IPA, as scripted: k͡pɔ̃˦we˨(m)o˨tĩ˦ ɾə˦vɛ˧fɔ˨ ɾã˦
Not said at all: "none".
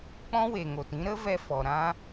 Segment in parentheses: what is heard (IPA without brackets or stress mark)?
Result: ŋ